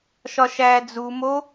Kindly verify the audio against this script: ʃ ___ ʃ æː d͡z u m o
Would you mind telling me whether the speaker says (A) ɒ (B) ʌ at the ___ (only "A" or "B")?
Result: A